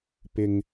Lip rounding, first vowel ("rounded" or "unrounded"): unrounded